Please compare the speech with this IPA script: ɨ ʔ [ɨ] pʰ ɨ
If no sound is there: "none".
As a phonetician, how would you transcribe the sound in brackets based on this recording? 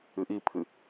i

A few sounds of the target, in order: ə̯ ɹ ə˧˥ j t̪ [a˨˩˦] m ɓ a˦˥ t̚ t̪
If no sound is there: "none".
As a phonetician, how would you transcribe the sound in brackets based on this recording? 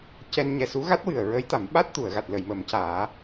a˨˩˦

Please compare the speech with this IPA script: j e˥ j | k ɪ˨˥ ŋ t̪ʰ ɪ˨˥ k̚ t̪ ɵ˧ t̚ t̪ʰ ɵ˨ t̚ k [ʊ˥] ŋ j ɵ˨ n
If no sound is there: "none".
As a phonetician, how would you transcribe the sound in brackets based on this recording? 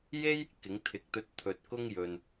ʊ˥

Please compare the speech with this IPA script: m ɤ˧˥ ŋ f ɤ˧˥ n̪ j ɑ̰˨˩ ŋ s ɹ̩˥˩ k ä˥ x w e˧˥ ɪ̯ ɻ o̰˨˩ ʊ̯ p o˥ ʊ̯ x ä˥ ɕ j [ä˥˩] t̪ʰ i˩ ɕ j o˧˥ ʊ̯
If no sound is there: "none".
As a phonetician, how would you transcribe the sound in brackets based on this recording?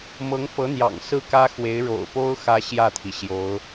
ä˥˩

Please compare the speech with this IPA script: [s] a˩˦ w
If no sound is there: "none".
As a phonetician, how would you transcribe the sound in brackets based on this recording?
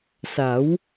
s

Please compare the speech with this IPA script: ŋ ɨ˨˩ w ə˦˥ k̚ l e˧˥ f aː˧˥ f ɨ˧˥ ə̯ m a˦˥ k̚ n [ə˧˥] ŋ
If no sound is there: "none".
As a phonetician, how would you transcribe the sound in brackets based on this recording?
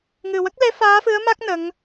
ə˧˥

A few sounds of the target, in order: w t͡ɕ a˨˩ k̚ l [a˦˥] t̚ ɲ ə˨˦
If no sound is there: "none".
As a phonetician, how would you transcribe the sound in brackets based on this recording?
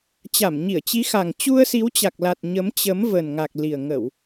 a˨˩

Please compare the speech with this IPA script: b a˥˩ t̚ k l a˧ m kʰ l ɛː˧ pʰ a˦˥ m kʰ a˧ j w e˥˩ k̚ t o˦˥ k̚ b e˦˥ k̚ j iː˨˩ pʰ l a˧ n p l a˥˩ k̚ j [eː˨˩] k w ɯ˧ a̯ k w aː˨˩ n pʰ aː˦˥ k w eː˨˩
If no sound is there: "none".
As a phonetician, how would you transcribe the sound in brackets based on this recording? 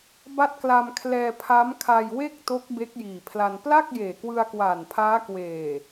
eː˨˩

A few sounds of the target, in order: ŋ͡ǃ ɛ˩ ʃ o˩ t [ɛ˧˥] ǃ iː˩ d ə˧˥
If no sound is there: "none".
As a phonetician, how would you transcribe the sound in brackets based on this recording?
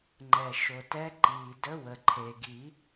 ɛ˧˥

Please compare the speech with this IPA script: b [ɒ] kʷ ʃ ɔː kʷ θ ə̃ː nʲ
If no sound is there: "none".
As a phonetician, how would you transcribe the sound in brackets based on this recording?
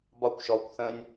ɒ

